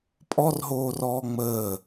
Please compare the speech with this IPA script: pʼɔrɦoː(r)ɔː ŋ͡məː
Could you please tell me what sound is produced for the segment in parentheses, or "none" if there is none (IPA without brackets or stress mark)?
r